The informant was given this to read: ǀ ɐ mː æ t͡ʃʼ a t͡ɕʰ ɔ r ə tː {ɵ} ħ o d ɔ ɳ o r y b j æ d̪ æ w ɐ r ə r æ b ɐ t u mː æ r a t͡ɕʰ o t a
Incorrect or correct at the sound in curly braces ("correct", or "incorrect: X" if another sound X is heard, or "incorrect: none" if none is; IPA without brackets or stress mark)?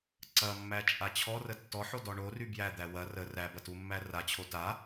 incorrect: ɔ